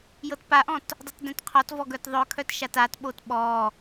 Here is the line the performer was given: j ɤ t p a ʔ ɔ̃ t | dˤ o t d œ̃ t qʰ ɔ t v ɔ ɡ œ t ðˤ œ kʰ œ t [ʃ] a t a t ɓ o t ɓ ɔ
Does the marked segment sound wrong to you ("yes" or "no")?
no